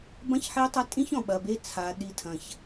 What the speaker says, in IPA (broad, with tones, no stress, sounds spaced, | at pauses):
b ɐ̃˦ ç ħ e˦ tˤ ɐ˦ tʼ ĩ˦ ç ɔ̃˨ ɓ ɐ˨ b e˦ t͡sʰ a˨ ɗ i˦ tʰ ɐ̃˦ ç